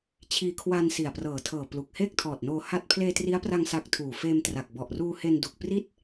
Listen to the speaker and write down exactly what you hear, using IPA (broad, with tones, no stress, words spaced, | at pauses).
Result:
t͡ɕʰiː˧kʰwa˧n si˨˩a̯prɤː˨˩tʰɤː˨˩ plu˨˩k̚heː˥˩k̚tʰɔː˨˩t̚noː˧ ha˥˩t̚ pʰleː˧tri˦˥a̯pra˧ŋ sa˦˥k̚tʰuː˨˩ feː˧mtra˨˩k̚ bɔ˨˩ʔruː˧he˧n du˨˩k̚ pri˥˩t̚